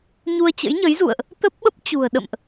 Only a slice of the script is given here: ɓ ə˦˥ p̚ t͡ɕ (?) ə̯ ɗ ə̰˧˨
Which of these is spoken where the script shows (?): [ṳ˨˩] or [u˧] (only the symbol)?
ṳ˨˩